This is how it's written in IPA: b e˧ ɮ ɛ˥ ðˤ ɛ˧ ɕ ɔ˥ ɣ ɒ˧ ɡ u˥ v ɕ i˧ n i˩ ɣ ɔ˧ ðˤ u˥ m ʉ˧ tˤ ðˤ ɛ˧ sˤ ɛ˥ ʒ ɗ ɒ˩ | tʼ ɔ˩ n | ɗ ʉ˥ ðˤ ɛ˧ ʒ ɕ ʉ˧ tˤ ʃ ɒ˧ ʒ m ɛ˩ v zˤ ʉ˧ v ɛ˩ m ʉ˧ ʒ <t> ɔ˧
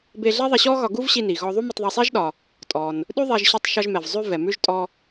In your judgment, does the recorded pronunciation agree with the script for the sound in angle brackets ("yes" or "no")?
no